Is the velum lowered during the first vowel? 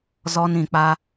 no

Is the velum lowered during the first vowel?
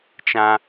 yes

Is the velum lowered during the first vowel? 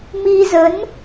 no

